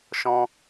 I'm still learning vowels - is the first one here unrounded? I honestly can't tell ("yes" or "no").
no